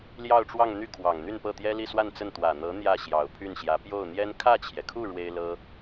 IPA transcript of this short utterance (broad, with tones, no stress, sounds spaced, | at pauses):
l j ɑ˥˧ ʊ̯ ʈ͡ʂ w ɑ˥˧ ŋ n̪ y˥˩ kʰ w ɑ˨˩ ŋ n̪ y˥˧ n p ɤ˥˩ t̪ j ɛ˥ l i˥˧ s w a˥˧ n t͡s ə˥˩ n t̪ w ä˨˩ n̪ ɤ˧˥ n̪ j ä˥˩ ɕ j ɑ˨˩ ʊ̯ pʰ y˥˩ n ɕ j ä˧˥ p j o˥˩ ʊ̯ n̪ j ɛ˥ n kʰ ä˥˩ t͡ɕʰ j ɛ˩ kʰ u˥˩ ɻ w e˥ ɪ̯ l ɤ˥